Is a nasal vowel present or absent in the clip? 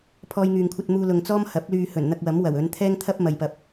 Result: absent